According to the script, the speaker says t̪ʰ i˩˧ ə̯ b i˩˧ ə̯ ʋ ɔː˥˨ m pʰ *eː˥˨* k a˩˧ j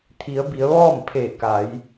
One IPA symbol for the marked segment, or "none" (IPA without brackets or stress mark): eː˧˩